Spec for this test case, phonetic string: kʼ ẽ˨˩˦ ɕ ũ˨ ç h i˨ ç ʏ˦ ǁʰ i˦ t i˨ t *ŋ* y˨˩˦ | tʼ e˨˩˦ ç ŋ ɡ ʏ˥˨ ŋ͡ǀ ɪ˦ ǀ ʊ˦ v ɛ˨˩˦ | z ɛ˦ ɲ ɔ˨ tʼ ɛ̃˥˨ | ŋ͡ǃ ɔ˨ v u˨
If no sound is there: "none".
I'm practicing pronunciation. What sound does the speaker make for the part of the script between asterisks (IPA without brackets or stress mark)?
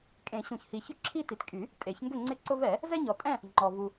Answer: kʼ